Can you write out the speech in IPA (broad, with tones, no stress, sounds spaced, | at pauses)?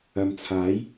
ɐ˨ m t͡sʰ aː˨˥ j